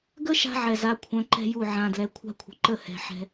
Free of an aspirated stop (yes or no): no